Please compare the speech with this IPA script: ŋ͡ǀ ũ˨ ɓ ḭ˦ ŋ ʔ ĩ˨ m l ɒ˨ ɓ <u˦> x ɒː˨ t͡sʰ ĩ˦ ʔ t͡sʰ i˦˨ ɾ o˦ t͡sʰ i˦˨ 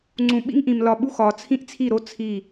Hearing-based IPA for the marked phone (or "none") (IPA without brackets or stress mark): u˦